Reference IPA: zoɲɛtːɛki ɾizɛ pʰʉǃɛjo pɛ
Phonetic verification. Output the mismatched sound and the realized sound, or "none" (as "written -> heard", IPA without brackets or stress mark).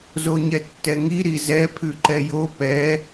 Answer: k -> ŋ